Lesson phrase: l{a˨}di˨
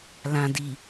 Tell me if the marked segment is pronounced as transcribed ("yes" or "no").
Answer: no